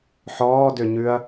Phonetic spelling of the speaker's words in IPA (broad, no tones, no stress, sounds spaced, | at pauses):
ħ ɔː d ø ɲ ʉ ɐ̯